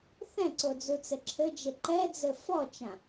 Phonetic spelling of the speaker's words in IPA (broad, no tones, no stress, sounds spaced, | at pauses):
θ ɛ̃ ǀ o d͡z u t͡s ɘ ǁʰ ɘ d͡ʒ e ǃ ɛ d͡z ɘ f ɔ t͡ʃ ã